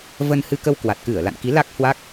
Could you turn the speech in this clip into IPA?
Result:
v ə˧ n h ɨ˧ k ə˧ w k w a˨˩ t̚ k ɨ˧˩ ə̯ l a̰˧˨ n k i˨˦ l a˦˥ k̚ h w a˦˥ k̚

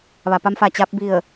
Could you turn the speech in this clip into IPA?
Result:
ʋ a˩ p a˧ m f a˩ t͡ɕ a˧ p̚ b i˧˩ ə̯

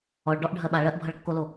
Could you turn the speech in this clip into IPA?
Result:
ɔ ɭ ɖ ɔ ʔ ɖʱ ɜ ɓ a ɭ ɜ ʔ bʱ ʌ ɭ kː o l o

